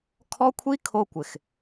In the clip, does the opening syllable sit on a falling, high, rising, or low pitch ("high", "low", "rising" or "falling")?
high